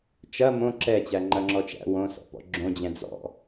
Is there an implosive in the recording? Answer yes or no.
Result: no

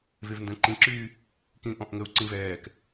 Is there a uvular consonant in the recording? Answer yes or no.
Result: no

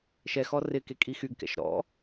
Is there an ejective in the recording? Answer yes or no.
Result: yes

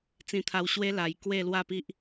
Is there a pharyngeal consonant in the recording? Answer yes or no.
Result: no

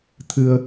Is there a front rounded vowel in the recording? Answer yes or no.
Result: no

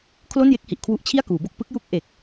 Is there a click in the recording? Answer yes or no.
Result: no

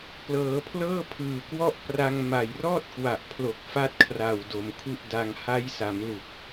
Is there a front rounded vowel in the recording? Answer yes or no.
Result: no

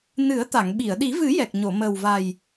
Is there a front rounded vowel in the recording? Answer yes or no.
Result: no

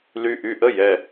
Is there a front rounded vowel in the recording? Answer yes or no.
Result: yes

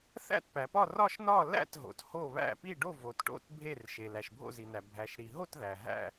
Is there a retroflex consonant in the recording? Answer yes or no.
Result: yes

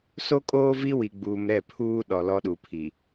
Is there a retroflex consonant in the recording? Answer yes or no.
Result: no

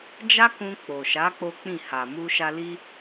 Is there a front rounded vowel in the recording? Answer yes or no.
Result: no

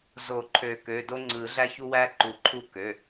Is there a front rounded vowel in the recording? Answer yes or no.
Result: yes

